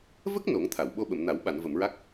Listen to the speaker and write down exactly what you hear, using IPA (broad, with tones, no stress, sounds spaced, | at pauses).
v ə˦˥ k̚ n o˨˩˦ ŋ t̪ʰ a˨˩˨ w ɓ o˧ ɓ ə˨˩˨ m n a˨˩˦ w ɓ a˨˩˨ n v ə˨˩˨ m ɹ a˦˥ k̚